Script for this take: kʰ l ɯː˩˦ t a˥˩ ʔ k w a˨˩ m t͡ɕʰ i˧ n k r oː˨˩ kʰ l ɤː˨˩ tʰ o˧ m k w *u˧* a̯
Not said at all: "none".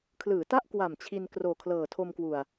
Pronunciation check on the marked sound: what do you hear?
u˨˩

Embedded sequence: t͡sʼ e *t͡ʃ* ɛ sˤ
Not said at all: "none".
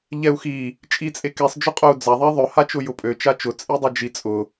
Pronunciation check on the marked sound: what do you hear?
k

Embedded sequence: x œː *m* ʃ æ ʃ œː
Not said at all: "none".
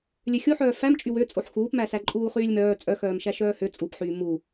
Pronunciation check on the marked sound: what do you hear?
m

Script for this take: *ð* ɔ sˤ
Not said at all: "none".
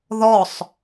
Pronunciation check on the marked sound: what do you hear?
ð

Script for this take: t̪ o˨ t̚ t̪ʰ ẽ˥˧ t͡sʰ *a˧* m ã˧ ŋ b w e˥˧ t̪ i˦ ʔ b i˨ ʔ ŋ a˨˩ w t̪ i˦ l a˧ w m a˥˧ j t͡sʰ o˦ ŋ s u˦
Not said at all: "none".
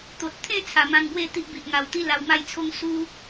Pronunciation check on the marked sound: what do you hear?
a˨˩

